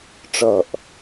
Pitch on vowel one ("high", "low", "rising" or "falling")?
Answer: falling